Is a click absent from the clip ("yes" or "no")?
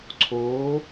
no